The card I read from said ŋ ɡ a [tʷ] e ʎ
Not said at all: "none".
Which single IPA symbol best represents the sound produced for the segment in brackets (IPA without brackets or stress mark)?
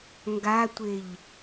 tʷ